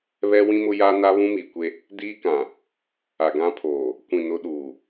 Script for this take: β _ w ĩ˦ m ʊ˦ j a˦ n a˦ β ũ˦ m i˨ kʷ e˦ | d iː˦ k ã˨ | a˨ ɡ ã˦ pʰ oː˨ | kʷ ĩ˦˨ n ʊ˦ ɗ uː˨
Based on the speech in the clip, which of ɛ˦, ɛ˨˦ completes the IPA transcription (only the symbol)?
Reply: ɛ˦